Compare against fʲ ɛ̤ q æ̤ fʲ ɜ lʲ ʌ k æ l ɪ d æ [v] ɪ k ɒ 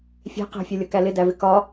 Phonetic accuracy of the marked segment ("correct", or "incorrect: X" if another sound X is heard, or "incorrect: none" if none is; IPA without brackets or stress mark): correct